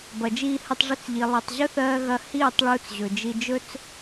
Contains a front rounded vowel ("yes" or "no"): no